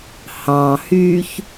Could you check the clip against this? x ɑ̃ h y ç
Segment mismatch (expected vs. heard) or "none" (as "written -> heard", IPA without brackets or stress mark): x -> h